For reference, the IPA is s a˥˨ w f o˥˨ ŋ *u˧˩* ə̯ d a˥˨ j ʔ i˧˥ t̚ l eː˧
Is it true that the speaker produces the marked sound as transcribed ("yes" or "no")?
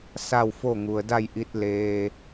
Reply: no